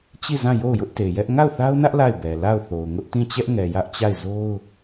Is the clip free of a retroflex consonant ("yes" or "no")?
yes